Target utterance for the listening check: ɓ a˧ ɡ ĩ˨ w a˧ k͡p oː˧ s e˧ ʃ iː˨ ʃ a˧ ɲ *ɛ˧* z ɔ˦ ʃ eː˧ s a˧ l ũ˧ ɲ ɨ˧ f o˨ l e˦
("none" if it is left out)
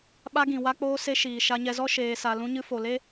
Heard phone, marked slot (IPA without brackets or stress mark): ɛ˧